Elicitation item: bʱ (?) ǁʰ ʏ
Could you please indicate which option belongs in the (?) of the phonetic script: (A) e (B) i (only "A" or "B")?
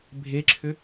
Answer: A